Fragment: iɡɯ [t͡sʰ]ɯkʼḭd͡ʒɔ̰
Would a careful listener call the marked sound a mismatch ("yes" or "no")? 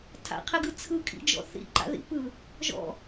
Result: no